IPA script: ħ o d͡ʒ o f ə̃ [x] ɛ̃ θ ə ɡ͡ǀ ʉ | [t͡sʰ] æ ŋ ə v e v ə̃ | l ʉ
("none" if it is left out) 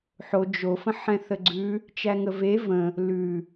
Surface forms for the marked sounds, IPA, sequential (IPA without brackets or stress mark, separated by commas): ħ, t͡ʃ